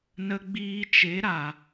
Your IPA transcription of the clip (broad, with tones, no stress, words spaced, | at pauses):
nə˧ɡ͡biː˧t͡ʃe˨˦ɾa˨